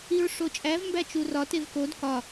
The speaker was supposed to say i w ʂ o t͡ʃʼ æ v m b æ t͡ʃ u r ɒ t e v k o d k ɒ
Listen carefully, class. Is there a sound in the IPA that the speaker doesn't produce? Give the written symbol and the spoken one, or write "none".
w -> ɹ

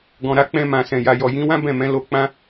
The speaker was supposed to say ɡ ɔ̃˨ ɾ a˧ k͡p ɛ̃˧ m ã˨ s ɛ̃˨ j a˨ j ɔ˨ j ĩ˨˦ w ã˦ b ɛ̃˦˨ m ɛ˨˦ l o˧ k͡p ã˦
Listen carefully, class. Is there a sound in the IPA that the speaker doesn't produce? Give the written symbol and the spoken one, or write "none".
ɛ˨˦ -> ɛ̃˨˦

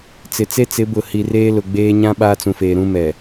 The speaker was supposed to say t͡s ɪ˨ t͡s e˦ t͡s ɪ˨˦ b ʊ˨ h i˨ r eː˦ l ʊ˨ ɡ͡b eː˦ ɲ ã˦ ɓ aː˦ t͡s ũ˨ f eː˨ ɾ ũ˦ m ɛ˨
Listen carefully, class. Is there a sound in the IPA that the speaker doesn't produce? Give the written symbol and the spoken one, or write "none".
none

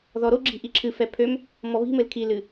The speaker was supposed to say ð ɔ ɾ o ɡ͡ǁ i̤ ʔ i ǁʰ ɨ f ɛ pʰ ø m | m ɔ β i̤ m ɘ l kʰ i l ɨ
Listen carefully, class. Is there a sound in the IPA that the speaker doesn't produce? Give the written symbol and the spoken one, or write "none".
none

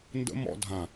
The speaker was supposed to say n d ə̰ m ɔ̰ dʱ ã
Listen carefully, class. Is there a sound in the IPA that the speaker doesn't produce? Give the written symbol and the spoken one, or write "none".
none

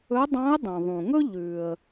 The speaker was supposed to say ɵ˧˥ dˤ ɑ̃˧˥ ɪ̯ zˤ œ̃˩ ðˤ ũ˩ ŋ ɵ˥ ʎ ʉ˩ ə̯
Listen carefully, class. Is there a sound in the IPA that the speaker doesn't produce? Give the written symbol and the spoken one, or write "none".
zˤ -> dˤ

